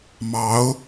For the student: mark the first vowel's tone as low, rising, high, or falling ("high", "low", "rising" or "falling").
rising